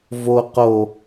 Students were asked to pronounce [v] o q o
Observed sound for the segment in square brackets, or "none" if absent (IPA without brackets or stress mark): v